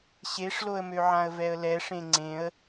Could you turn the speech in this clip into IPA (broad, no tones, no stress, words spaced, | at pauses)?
ɕeʂloə̯møʕãə̯ vɛə̯lɛʂẽ ŋ͡ǀẽə̯